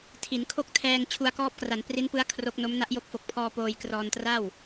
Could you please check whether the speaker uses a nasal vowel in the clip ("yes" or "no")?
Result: no